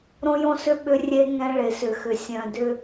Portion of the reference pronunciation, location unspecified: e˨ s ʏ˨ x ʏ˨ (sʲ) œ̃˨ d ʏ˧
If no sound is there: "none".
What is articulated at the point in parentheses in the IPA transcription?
sʲ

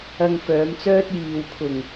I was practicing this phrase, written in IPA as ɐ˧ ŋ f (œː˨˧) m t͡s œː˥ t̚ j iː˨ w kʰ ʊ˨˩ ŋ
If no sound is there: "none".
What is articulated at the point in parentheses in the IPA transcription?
œː˨˧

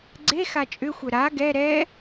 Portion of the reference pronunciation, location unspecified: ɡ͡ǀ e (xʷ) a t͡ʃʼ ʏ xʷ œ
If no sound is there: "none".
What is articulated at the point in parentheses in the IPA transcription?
x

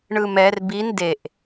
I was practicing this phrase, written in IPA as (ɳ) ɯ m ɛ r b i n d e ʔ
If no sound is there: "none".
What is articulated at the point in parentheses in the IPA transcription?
ɳ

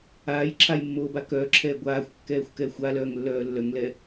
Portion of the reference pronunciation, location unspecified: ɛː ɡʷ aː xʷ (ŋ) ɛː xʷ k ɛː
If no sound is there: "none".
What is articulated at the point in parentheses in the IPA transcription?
kː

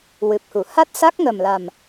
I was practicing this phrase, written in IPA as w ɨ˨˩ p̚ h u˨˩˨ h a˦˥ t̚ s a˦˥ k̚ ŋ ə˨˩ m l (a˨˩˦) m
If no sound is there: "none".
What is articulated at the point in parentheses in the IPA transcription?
a˨˩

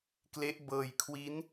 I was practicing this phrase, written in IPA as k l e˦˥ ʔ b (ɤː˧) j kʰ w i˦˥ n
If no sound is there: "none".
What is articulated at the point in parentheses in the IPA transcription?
ɤː˧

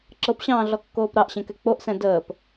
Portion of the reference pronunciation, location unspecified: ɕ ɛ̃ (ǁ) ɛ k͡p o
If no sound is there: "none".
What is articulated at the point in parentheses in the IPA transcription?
k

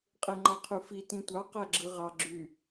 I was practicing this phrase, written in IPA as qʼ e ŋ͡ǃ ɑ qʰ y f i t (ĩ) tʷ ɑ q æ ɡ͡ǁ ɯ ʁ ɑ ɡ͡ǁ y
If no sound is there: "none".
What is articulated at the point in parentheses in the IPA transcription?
ĩ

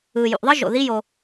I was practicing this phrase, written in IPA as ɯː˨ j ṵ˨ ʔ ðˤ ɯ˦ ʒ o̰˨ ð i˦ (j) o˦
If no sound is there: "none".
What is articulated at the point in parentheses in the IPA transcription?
j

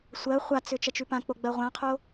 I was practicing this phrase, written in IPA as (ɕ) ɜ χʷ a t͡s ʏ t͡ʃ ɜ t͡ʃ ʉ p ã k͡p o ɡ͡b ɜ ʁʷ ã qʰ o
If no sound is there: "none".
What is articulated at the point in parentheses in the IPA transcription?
sʷ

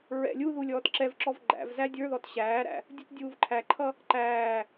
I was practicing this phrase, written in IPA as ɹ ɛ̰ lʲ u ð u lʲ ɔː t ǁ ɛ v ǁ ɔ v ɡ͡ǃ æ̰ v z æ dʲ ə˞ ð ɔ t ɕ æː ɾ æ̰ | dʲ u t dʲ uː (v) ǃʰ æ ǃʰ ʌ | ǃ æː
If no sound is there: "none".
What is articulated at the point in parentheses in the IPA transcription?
v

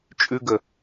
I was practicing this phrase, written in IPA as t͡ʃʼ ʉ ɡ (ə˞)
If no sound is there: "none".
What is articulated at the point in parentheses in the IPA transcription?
ə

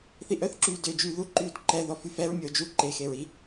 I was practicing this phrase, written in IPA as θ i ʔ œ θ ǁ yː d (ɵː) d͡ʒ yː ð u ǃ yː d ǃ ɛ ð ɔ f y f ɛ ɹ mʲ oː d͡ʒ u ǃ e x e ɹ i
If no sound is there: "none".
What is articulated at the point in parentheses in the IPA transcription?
øː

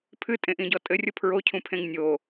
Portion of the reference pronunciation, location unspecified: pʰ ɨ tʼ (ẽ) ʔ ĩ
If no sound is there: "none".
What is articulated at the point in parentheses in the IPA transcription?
ẽ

